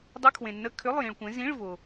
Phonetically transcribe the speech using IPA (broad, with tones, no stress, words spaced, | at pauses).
dˤə˧˥˧kʰwẽ˨nːə˧˥˧ kʰʏ˧˥˧lˠjĩ˨ɭkʷẽ˨˦ zĩ˧˥˧ɭvʊ˨